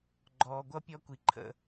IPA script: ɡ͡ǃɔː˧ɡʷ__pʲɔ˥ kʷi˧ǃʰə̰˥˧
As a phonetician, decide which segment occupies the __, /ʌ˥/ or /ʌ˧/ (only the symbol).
ʌ˥